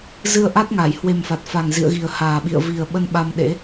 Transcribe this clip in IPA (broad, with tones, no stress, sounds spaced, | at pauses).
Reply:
z ɨ˧ ə̯ ʔ a˦˥ t̚ ŋ a˧˩ j h w e˨˩ m f a˨˩ t̚ f a˨˩ ŋ z ḭ˧˨ ə̯ ɣ i˨˩ ə̯ h aː˨˩ ɓ ḭ˧˨ ə̯ v i˨˩ ə̯ ɓ ə˧ n ɓ a˧ m ɗ ḛ˧˥